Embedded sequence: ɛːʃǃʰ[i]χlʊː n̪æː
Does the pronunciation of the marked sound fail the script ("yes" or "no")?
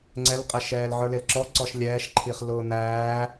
no